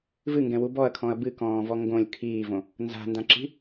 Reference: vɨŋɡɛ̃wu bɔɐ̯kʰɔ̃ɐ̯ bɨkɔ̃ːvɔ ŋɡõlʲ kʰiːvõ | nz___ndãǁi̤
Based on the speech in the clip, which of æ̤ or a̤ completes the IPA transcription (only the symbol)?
a̤